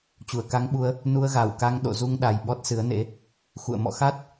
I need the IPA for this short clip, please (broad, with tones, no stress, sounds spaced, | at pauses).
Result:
t͡ɕ u˧˩ ə̯ k a˧ ŋ ɓ u˧ ə̯ | n u˧ ə̯ ɣ a˧˩ w k a˧ ŋ ɗ o̰˧˨ z u˧ ŋ ɗ a˨˩ j ɓ ɔ˦˥ t̚ s ɨ˨˦ ə̯ n ḛ˧˥ | x ṵ˧˨ ə̯ m ɔ̰˧˨ x a˦˥ t̚